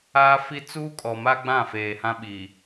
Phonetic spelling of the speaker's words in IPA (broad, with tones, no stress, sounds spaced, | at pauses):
aː˦ f i˦ t͡s uː˦ kʼ ɔ˨ m a˦ ɡ͡b ã˦˨ f eː˨ h ã˦ ɓ i˨